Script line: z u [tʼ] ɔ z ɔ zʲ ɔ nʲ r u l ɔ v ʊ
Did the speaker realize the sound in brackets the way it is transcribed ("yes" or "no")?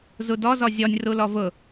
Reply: no